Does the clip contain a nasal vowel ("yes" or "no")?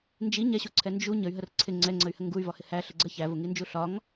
no